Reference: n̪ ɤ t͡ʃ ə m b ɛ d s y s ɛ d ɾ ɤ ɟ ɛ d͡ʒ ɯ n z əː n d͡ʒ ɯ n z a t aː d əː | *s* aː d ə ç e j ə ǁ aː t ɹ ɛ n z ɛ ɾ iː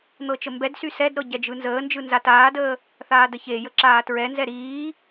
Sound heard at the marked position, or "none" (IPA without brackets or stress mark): θ